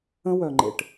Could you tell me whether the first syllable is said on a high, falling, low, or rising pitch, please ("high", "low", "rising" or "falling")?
high